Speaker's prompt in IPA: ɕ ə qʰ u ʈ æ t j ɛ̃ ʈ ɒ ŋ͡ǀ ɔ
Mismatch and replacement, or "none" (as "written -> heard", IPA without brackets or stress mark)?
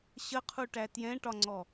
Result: none